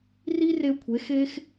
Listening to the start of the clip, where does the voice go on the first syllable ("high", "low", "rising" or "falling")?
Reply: high